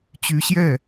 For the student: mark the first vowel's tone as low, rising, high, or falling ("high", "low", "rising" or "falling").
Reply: rising